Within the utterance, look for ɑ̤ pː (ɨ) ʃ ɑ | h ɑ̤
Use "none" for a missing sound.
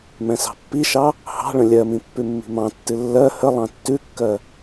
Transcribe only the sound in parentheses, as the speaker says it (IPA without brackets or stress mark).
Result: i